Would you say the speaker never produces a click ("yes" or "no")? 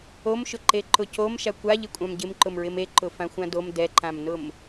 no